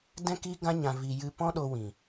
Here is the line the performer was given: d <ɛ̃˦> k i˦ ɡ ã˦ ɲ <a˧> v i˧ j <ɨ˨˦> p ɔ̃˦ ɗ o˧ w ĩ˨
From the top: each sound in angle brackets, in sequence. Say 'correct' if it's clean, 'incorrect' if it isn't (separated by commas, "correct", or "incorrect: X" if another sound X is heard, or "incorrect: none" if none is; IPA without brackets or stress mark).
correct, incorrect: ã˧, incorrect: ɨ˧